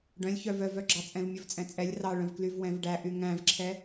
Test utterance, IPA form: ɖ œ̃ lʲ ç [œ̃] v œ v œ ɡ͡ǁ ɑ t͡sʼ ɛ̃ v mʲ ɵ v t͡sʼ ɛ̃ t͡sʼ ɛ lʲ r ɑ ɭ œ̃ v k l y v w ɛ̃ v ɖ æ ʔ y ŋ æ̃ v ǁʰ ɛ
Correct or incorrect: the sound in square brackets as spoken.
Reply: incorrect: œ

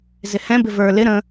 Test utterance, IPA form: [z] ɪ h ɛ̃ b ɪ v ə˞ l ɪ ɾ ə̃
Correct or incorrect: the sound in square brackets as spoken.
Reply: correct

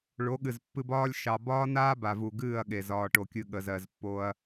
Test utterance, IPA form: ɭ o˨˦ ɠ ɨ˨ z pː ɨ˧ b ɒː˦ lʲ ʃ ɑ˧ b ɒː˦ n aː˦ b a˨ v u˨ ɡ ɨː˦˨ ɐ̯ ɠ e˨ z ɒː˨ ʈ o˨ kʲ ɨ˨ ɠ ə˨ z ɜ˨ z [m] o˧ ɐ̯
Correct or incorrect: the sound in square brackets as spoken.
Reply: incorrect: pː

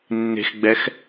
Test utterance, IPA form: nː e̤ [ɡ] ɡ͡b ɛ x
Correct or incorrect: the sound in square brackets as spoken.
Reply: incorrect: x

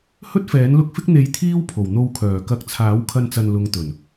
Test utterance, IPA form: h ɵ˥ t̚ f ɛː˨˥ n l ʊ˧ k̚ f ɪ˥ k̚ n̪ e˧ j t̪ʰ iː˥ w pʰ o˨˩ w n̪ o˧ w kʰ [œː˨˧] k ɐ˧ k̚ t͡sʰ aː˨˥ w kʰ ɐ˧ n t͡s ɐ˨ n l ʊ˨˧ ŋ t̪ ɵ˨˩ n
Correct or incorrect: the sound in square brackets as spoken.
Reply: incorrect: œː˨˩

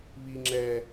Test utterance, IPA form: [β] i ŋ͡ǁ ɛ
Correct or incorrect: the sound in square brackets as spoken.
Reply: correct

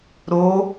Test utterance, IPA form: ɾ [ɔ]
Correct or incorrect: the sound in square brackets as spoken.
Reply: incorrect: o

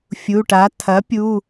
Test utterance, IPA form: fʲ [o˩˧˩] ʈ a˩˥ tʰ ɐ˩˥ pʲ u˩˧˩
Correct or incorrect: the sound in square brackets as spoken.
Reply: incorrect: u˩˧˩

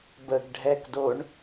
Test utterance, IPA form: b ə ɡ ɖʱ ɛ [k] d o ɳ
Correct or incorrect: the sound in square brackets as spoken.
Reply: correct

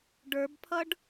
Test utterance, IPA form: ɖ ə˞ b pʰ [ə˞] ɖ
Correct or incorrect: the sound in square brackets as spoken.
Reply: incorrect: ʌ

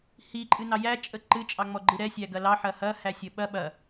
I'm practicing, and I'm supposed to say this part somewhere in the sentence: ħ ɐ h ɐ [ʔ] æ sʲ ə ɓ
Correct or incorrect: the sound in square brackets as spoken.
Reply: incorrect: h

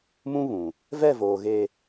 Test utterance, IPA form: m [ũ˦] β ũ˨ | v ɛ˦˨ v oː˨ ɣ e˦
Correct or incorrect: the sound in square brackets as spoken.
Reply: correct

